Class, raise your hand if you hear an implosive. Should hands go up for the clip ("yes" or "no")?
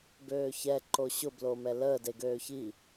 no